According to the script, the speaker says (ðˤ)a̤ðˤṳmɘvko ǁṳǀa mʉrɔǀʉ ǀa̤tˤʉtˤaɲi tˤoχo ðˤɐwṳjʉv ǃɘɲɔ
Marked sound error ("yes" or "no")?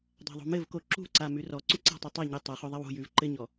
yes